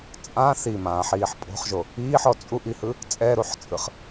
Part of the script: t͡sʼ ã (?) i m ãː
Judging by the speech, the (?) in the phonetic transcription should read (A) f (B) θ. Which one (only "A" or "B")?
B